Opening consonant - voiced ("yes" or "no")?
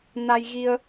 yes